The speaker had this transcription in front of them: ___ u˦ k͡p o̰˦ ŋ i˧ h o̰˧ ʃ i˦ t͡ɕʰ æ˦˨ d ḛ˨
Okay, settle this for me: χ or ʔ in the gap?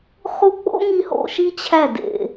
χ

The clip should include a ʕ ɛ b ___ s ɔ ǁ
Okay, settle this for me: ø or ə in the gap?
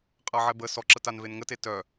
ə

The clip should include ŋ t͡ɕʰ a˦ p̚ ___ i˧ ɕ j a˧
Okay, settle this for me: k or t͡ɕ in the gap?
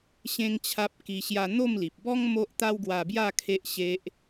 k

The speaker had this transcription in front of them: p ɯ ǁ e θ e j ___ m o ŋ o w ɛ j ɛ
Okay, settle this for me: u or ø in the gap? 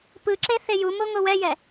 u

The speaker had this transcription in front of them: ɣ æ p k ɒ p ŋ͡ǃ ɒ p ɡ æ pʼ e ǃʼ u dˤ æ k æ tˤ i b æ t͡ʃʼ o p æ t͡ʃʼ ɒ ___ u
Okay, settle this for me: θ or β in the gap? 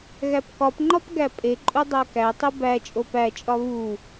β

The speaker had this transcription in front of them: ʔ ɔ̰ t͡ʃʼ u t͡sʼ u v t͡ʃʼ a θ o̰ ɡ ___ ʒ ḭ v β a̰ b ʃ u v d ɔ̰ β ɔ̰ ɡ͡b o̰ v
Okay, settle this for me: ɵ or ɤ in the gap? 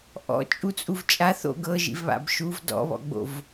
ɤ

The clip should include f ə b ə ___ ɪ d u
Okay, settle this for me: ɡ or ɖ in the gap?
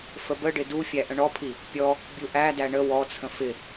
ɖ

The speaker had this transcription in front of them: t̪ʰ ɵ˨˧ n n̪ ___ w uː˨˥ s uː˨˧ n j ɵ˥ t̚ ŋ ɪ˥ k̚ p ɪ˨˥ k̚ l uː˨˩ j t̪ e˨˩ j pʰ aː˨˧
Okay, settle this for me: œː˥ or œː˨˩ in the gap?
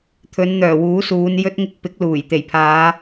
œː˨˩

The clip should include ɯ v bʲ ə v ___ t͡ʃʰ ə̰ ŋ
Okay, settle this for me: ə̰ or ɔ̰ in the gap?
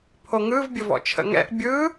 ɔ̰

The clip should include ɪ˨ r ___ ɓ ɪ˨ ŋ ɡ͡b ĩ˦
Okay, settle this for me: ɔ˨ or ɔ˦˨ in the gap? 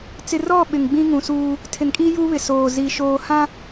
ɔ˦˨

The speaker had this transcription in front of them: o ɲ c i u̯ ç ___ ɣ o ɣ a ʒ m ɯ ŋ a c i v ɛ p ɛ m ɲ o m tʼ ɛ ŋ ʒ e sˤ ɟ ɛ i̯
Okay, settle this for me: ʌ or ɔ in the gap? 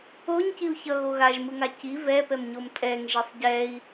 ʌ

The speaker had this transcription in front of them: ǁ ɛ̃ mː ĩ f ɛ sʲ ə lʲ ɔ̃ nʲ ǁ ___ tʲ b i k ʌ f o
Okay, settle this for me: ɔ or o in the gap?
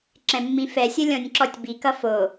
ɔ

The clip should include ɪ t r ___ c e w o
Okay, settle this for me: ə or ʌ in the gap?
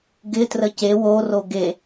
ə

